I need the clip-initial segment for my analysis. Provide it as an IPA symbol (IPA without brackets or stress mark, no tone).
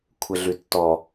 kʷʰ